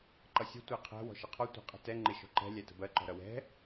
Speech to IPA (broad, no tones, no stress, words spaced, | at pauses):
ǃʌsʲə̤ tʷæqʰæ̤ wɔ̤ʃəqʰɔ tʷæ̤qʼə̤tɛ ŋ͡ǃɪʃɔ̤ǃɛ̤ lʲætə̤bɜ ǃɔ̤ɾʌwɛ̤